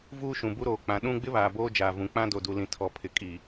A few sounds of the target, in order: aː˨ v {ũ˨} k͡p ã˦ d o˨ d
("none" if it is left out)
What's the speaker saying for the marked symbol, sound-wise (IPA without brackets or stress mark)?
ũ˨